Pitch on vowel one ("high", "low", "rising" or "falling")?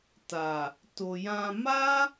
low